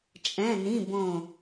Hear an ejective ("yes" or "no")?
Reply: yes